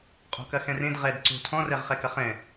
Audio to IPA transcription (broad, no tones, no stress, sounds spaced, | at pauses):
qʼ o̤ k ɐ x ɛ̃ r ẽ d ʁ ɛ d ǀ o̤ tʰ ɔ̃ r ɛ ʁ χ ɛ k ɐ χ ɛ̃